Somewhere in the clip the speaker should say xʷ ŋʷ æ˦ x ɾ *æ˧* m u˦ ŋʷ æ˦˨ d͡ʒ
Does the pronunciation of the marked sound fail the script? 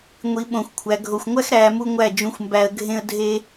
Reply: yes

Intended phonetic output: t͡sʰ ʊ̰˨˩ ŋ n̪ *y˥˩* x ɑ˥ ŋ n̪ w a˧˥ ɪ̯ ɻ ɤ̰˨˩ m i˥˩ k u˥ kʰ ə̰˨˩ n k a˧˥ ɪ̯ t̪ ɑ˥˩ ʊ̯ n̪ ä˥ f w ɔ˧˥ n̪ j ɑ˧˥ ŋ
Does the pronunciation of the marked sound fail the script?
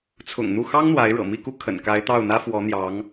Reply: yes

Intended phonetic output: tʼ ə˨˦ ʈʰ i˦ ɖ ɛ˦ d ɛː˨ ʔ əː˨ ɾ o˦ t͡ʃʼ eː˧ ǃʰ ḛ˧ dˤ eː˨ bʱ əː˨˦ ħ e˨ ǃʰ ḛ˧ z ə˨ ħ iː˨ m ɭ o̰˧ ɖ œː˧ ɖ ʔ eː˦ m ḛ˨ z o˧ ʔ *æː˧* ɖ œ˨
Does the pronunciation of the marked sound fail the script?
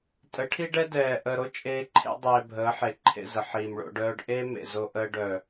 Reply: yes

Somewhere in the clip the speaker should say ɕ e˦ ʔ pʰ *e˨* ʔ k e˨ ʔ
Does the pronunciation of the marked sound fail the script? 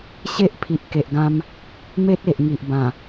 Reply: yes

